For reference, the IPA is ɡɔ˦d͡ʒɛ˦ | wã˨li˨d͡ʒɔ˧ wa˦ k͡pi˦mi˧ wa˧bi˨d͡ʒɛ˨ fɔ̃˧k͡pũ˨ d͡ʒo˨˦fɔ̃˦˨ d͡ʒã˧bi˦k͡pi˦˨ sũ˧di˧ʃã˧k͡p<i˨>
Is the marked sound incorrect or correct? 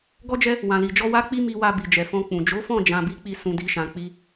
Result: incorrect